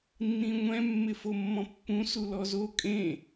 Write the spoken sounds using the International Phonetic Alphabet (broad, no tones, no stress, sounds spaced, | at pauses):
nː ĩ ŋʷ ɛ̃ mː ɪ f o mː ɔ̃ pː ũ s u l ɔ z o kʼ ẽ